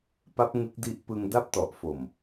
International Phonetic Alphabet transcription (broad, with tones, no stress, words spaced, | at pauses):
pa˦˥p̚ ŋɯ˦˥k̚di˦˥ʔ pɯ˧ŋ da˦˥p̚tɔ˨˩ʔfo˨˩m